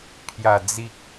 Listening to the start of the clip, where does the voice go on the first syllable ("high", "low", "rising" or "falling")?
low